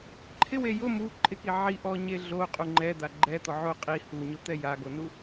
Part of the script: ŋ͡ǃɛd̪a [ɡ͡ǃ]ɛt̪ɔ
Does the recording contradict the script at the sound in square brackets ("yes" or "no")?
no